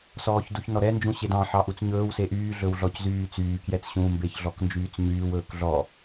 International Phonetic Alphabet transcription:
sɔːçduçnɔɾɛ nd͡ʒũɕedɑ̃ ħɑʔut͡sɲɵːw seʔyː ɮɵwɮɔczyːt͡syː kjɛt͡sɕũːmbeç ɮɔknd͡ʒyːt͡sɲyːw ɵːkɮɔ

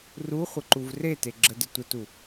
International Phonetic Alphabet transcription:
ruχʷə ǃuvrete ɡ͡ǁədə tʷətu

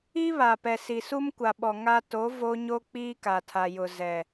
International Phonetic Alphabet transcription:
i˦βa˨ pɛ˨si˨su˦m kʷa˨ɓɔ˨ ŋa˦ to˨˦ vo˦ ɲo˦k͡piː˦ka˨tʰa˨ jʊ˨ zɛ˨

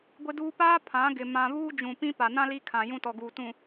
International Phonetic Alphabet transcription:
ɡʷɪ˦duː˦ paː˦ pʰã˨˦ ɡɪ˨ mã˨βuː˦d͡ʒũ˨pĩ˦ pa˨ nã˦ li˦ kʰã˨ jũ˦tɔ˨ɡuː˨ tũ˨

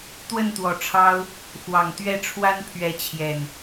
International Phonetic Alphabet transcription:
t̪wə˥˨nt̪wɔ˨˩ʈ͡ʂʰɑ˦ʊ̯ | xwɑ˨˩ŋt̪ɥɛ˥˨ ʈ͡ʂʰwa˦npʰɥɛ˨˦t͡ɕʰjɛ˨˩n

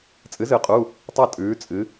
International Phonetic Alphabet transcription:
t͡sʼɨ˩˥zɨ˩˥qʼu˩˧˩ | tˤɐ˦˨ tʼʉː˩˧t͡sʼɨ˩˧

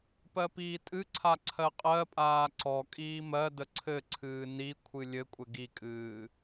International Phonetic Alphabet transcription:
pɜpiːtʼɨǀʰa ǀʰɜqʼɜpʼaː ǀɔ kʼiːmɜdə ǀʰɘǀʰɨː ni kʷʰɨlʲɘkʷʼɘ ɡikʼɨː

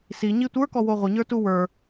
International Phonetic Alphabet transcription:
siɲi tʷə˞kɔwo ʁʷəɲə˞tu wə˞

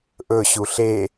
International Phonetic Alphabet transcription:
ʔɵ ɕuɬe

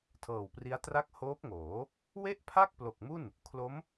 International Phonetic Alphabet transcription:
tʰɤː˨˩wpri˦˥a̯tra˥˩k̚ hoː˦˥p̚ŋoː˩˦ | we˥˩ʔpʰa˥˩k̚ plo˨˩k̚mu˥˩n | kʰlo˦˥m

